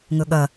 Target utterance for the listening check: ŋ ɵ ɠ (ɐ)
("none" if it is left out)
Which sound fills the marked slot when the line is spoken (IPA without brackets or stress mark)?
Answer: ɐ